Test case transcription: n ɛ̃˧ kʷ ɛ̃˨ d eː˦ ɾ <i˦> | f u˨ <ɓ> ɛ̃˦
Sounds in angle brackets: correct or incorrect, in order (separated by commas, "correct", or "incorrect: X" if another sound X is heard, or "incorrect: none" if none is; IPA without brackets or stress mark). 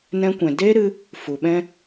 incorrect: ɨ˦, correct